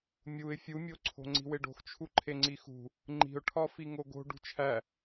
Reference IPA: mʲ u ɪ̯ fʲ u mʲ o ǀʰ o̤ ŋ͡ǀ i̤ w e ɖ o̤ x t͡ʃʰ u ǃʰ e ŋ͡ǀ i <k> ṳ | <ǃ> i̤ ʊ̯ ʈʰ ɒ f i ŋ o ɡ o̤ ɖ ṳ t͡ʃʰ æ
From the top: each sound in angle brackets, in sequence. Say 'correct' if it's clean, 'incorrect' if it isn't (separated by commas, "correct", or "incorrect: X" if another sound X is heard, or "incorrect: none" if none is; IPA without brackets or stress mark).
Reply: incorrect: x, incorrect: ŋ͡ǃ